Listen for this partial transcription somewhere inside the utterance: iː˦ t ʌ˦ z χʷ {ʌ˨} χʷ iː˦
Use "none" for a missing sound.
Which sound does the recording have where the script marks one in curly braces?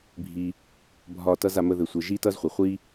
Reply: ʌ˨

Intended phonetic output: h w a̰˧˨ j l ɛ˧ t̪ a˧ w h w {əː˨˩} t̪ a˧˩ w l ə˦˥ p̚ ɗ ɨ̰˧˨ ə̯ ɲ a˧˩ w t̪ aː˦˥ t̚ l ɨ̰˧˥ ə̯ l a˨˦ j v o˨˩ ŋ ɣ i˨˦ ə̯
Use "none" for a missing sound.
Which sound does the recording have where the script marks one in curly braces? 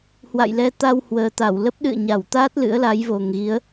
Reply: əː˨˩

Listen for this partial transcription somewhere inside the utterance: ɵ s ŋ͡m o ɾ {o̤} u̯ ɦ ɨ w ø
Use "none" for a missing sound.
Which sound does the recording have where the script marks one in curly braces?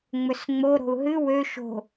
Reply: o̤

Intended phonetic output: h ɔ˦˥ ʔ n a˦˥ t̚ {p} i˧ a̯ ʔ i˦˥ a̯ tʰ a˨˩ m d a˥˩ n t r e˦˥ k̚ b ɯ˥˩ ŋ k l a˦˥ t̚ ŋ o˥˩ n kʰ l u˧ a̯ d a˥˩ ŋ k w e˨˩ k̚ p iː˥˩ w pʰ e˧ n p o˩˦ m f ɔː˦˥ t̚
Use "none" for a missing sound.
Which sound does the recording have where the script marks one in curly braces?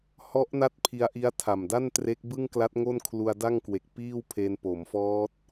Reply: pʰ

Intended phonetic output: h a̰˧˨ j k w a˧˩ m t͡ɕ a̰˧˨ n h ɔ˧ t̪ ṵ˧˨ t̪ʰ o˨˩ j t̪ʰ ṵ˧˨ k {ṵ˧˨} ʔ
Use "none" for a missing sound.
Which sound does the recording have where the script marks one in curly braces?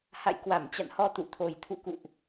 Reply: ṵ˧˨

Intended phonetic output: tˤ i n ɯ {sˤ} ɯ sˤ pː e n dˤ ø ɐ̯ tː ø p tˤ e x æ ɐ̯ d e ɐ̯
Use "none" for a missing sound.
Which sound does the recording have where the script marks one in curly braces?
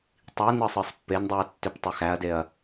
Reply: sˤ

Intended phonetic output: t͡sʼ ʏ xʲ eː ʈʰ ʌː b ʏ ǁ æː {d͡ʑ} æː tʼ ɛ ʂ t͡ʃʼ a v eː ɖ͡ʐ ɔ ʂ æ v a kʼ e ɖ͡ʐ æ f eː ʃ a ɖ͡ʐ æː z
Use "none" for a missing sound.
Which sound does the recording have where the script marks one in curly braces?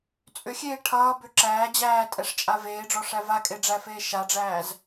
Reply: d͡ʑ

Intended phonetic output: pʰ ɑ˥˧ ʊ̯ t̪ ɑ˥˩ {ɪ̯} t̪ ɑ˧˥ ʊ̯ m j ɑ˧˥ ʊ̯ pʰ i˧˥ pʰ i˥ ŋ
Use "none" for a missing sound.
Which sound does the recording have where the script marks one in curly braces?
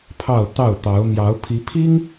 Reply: ʊ̯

